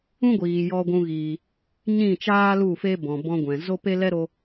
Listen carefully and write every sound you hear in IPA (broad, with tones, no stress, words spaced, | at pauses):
ũ˦ɡʷiː˨ jɔ˧ɡʷũ˧ɣiː˨ | ɲĩ˦˨t͡ʃaː˦ lu˦˨fe˦bɔ̃˨ bɔ̃˧ɡʷɛ̃˨ zo˦pe˦lɛ˦ɾo˧